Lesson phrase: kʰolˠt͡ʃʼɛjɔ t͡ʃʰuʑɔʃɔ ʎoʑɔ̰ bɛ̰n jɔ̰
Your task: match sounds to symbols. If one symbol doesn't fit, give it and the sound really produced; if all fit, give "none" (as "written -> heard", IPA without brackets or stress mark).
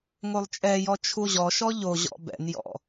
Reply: kʰ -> ŋ